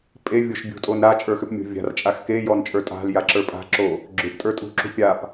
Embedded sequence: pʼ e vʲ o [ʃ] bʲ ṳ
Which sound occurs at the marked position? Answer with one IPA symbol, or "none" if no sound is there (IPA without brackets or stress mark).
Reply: ʃ